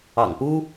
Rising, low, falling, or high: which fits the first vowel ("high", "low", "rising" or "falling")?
low